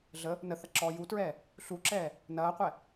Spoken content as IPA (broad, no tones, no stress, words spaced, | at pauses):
ɮə | nəθɐ ǁɔːjutɹɛː | ɬuǁɛː | nɐːqʷɛ